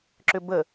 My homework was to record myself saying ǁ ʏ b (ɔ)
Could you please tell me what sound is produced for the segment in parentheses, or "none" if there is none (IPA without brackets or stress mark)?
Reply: ə